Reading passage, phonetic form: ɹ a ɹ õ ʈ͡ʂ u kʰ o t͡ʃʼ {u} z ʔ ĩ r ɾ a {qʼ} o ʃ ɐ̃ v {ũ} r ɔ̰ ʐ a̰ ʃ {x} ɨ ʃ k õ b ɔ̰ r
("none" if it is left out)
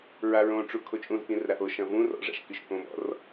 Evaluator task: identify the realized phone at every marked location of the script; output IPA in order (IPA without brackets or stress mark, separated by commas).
ũ, ʔ, ũ, k